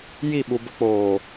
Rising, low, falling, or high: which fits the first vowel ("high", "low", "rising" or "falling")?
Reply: falling